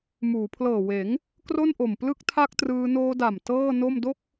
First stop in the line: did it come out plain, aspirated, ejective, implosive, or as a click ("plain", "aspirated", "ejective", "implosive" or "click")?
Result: aspirated